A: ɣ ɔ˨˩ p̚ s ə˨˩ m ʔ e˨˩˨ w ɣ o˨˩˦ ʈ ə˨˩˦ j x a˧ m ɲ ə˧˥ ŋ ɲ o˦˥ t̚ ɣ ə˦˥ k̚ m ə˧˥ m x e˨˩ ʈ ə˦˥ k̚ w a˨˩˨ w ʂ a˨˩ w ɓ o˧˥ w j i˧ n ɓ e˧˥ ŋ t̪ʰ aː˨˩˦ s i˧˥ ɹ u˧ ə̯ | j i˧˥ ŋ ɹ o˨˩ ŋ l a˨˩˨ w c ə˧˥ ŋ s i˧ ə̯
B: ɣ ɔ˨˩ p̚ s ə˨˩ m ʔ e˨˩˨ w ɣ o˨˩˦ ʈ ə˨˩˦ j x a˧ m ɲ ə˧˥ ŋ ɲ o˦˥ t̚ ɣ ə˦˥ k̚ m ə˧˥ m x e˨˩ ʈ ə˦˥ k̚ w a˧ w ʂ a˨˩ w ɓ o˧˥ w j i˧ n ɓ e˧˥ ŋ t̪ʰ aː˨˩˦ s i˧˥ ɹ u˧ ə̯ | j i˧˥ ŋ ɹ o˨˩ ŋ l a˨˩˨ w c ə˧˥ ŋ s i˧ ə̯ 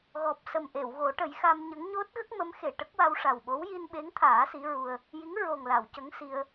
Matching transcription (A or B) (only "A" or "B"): B